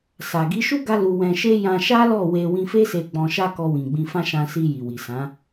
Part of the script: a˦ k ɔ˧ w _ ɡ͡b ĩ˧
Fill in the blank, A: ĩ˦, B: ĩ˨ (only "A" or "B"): B